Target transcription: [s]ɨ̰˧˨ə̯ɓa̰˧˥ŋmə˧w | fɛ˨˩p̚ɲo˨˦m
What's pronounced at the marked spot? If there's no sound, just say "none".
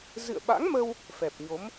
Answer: z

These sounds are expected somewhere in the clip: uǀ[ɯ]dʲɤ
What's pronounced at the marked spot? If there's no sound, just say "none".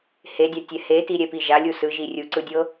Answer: ɯ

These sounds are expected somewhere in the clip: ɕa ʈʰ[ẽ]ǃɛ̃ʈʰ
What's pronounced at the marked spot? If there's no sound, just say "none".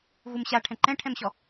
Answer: ɛ̃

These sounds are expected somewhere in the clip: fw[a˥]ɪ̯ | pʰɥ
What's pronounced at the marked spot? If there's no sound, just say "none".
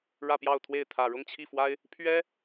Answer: a˥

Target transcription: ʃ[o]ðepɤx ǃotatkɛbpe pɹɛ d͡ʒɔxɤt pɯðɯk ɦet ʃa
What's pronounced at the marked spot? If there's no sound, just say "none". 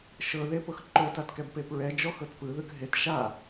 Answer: ɤ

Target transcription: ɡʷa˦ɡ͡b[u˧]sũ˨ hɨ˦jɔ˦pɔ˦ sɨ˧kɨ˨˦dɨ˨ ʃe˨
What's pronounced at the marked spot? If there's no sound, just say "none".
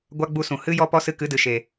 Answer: u˧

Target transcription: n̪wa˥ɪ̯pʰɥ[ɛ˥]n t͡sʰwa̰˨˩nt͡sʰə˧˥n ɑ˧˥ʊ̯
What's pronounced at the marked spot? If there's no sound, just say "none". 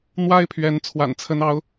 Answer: ɛ˧˥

